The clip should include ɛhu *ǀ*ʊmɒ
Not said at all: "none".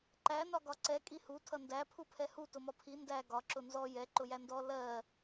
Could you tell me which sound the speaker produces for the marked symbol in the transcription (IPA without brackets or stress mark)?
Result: t